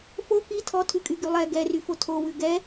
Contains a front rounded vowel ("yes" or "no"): yes